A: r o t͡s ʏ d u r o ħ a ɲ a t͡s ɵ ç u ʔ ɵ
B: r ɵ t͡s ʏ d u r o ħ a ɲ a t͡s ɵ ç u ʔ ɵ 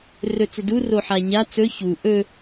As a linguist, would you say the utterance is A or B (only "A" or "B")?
B